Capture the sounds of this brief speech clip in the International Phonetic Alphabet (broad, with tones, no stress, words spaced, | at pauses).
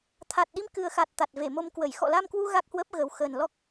t̪ʰa˨˩t̚ɗi˧m kɨ˨˩ə̯xa˨˩t̚ t̪a˨˩t̚ve˧˩mo˧mkwə˧˩j xɔ̰˧˨la˧mkwu˧ ɣa˦˥k̚hwə˦˥p̚ɣə˨˩w xə˨˩nlɔ˦˥k̚